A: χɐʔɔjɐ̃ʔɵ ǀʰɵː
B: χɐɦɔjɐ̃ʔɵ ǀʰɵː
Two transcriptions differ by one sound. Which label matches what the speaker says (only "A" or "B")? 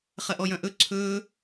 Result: A